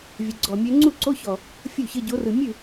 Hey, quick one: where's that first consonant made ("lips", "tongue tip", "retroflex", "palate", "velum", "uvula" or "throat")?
lips